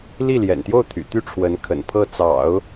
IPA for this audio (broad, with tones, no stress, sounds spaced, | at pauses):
l i˥˩ l j ɛ̰˨˩ n t̪ j o˥˩ ʊ̯ t̪ʰ y̰˨˩ t̪ y˥˩ ʈ͡ʂʰ w ə˧˥ n kʰ ə̰˨˩ n pʰ ɤ˥˩ t͡s ɑ̰˨˩˦ ʊ̯